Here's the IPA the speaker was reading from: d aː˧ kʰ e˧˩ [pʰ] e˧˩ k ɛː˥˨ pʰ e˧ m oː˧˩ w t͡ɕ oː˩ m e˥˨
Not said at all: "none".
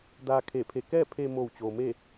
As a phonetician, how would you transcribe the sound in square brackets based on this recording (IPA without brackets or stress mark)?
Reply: pʰ